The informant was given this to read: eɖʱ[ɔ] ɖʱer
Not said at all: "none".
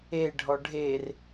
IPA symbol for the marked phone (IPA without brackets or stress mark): ɔ